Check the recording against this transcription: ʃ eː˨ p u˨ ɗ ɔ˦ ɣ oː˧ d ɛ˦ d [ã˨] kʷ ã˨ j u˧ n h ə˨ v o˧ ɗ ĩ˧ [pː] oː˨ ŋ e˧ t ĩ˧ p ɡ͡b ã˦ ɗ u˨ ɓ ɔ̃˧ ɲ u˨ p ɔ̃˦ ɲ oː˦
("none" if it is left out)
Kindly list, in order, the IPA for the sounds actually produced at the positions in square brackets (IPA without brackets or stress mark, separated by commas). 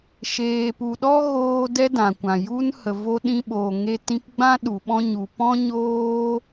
ã˨, ɓ